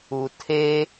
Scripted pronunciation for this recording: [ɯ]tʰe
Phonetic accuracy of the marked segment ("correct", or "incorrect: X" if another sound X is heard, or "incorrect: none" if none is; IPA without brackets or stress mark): incorrect: u